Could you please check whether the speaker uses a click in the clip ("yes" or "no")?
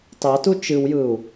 no